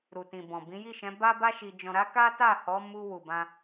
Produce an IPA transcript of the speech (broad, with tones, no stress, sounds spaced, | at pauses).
ɾ u˨ t ĩ˨ b ɔ̃˨ b ĩ˨˦ j i˦˨ ʃ ɛ̃˨˦ b a˦ b a˦ ʃ i˧ d͡ʒ ɔ̃˧ ɾ a˦ k a˦ t a˦˨ h ɔ˨˦ m u˧ w u˨ b ã˧